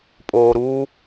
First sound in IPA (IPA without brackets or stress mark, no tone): pʼ